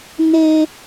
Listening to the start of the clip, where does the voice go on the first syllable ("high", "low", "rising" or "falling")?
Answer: low